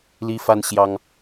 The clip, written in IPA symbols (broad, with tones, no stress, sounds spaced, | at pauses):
l i˦ f a˦ n ɕ j ɑ˦ ŋ